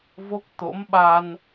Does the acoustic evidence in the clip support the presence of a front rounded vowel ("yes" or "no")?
no